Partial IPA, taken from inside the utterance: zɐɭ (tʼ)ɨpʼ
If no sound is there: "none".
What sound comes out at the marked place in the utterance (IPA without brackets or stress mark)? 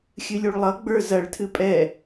tʰ